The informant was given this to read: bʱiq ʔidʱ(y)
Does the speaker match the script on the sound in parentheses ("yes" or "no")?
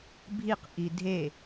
no